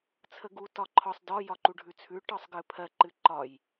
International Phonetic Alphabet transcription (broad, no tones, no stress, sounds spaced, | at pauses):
t͡sʰ ə ɡ u t ɒ ǃʰ ɒ sˤ d ɒ j ɒ ǃ u ɖʱ ʉ t͡sʰ ʉ ʈ ɒ sˤ ɡ ɨ pʰ ɜ ǃ ɨ ǃ ɒ j